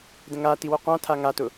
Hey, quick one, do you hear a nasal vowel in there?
yes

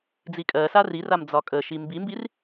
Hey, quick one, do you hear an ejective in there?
yes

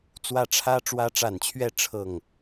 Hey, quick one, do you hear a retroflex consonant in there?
yes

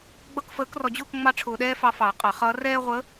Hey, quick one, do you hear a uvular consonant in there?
yes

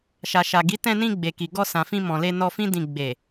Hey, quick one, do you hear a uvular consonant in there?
no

